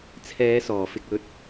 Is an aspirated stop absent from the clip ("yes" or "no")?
no